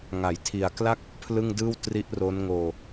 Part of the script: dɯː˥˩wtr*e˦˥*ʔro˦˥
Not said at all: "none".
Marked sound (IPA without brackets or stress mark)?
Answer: i˦˥